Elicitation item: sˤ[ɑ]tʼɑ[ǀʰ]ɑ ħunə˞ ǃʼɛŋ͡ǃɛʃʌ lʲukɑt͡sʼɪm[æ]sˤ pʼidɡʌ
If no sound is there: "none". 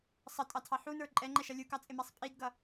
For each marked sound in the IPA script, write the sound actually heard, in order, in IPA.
ʌ, tʰ, æ

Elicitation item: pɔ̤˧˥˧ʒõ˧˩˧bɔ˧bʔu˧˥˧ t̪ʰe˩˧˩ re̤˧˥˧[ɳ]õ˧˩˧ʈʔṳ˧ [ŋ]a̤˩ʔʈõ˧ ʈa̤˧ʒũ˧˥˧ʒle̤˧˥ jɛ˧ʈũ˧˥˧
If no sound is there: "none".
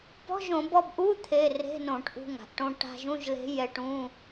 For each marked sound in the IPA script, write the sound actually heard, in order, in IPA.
n, ŋ

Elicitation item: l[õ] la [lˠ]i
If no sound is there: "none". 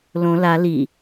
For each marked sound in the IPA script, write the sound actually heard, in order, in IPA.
õ, l

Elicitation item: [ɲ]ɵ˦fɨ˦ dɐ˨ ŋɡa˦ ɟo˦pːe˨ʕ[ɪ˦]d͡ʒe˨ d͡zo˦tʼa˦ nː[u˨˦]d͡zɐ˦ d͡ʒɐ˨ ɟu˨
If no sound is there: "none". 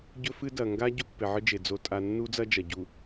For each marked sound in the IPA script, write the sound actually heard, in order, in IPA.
ɟ, ɨ˦, u˦

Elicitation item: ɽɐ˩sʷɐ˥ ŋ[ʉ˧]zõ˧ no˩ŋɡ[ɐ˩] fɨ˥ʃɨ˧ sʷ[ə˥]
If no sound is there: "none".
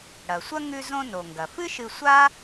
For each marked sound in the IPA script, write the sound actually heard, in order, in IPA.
ʉ˧, ɐ˩, a˥

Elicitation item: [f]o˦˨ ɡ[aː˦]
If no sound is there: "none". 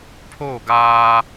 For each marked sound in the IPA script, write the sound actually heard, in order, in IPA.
pʰ, aː˦

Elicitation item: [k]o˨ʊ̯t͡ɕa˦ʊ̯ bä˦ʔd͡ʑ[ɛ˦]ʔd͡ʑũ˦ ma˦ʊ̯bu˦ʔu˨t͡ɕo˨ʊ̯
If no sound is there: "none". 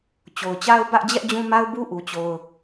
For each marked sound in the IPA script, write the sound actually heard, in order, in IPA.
t͡ɕ, ɛ˦

